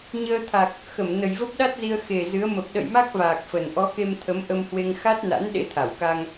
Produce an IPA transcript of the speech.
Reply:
ɲ əː˧ t̪ʰ a˨˩ k̚ | x ə˧˩ m n ə˨˩ j v ə˦˥ p̚ ɗ a˦˥ t̚ z i˧ ə̯ x e˨˩ z ɨ˨˦ ə̯ m ə˨˩ p̚ ɗ ə̰˧˨ j m a˦˥ k̚ v aː˨˩ k̚ f ə˨˩ n ʔ ɔ˨˦ k e˧ m t̪ʰ ə˨˦ m ʔ ə˧ m h w e˧ ŋ x a˦˥ t̚ n a̰˧˥ n ɗ ḛ˧˥ t̪ʰ a˧˩ w k a˧ ŋ

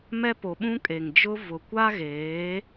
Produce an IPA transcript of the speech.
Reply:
m ɛ˦ p o˨ ɓ ũ˦ kʼ e˨ ŋ d͡ʒ ʊ˦ v ʊ˨ kʷ a˦ ɣ eː˨˦

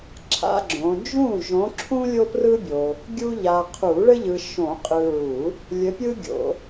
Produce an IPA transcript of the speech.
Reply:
ǁʰ a̰˦ ɡ͡ǁ õ˨˦ d͡ʒ ũ˥˩ ʒ õ˨˦ ǁʰ ũ˦ lʲ o˦ p r ɯ˦ bʲ o˨ | ɡʲ u˦ ʎ a˨ qʰ u˨˩˦ ɭ ɘ˦ ʎ ɯ˨ ʃ õ˨˩˦ qʼ ɯ˨ ɹ u˨˩˦ | lʲ ɘ˨˦ pʲ ɯ˦ ɡʲ o̰˨˩˦

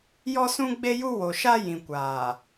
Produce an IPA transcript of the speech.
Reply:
j ɔ˦ s ũ˦ ɡ͡b e˦ j u˦ w o˨ ʃ a˦ j ĩ˨ kʷ aː˨

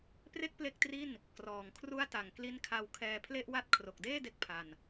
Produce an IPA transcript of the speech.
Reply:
p r e˥˩ k̚ p l e˦˥ k̚ t r i˥˩ n | k r ɔː˨˩ ŋ kʰ r u˦˥ a̯ t a˨˩ ŋ k l i˦˥ n kʰ a˧ w kʰ ɛː˧ pʰ l e˥˩ ʔ w a˥˩ t̚ kʰ r o˨˩ k̚ d eː˥˩ d e˥˩ k̚ pʰ a˧ n

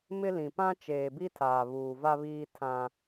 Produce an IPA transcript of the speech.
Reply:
m ɪ˦ l ĩ˨ p ã˦ t͡ʃ eː˨ b i˦ tʰ aː˨ β uː˨ v a˦ β iː˦ tʰ ã˦

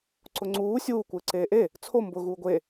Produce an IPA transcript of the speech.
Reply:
ǀ ʊ ŋ͡ǀ uː sʲ uː kʷ ɪː ǀ eː ʔ e | t͡sʰ o m b ʊ ɣ uː ɡʷ e

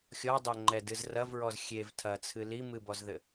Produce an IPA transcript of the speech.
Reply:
xʲ ɔ dˤ e ŋ͡ǃ ɛ d ɨ z r ɐ v ɹ ɔ z xʲ e v tʰ ɐ t͡sʰ ɨ l i m ɨ b ɔ z ð ɘ

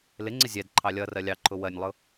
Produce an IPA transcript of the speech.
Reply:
l ɪ ŋ͡ǀ ɪ zʲ ɛ d ǃʰ ɑ lʲ ʌ r ɜ lʲ ɑ ǃʰ ʊ w ɜ nʲ lˠ ʊ

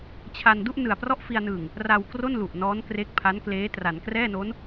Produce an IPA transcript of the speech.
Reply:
t͡ɕʰ a˧ n d u˥˩ ʔ n ɯ˨˩ a̯ p r ɔ˥˩ ʔ f i˧ a̯ n ɯː˨˩ ŋ | r a˧ w k r o˥˩ n l u˨˩ ʔ n ɔː˦˥ n k r e˦˥ k̚ pʰ a˦˥ n k l eː˦˥ t r a˩˦ n k r ɛː˥˩ n o˦˥ n

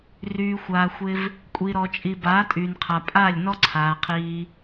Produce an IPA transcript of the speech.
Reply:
r yː˧ xʷ aː˧ xʷ ɪ˦ v | kʷʼ i˨ ɾ ɔ˨ t͡ʃʼ i˨ b aː˨˦ tʼ yː˨ n qʰ a˨ pʼ aː˦˨ lʲ n ɔ˦ ǀʰ aː˨ qʰ iː˧

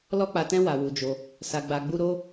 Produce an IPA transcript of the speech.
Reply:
l ɔ˦ k͡p a˧ t ɛ̃˦ w a˧ w u˧ d͡ʒ o˧ | s a˧ ɡ͡b a˧ ɡ͡b u˦ ɾ o˦

